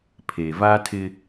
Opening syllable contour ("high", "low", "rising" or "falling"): low